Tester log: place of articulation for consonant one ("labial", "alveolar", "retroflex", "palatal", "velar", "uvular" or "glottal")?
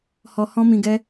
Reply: glottal